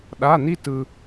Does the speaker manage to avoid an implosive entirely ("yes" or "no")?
no